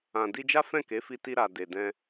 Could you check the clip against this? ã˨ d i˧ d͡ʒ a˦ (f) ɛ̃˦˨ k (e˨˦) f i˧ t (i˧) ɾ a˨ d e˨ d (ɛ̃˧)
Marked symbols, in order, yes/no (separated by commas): yes, yes, yes, yes